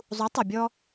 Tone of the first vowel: rising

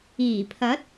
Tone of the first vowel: low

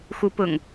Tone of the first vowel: rising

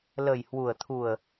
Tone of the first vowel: low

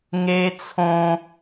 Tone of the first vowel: high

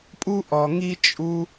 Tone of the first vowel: high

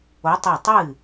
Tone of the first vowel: rising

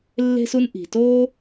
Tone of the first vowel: high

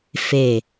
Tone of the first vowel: low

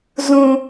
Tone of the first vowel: low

